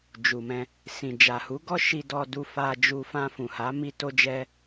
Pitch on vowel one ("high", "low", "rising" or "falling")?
low